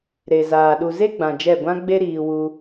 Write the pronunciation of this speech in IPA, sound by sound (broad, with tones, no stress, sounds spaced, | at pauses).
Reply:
ɾ e˨ z aː˨ ɗ u˨ z e˦ ɡ͡b ã˨ d͡ʒ ɛ˦˨ ɡʷ ã˦ ɡ͡b e˦ ɾ iː˧ w u˧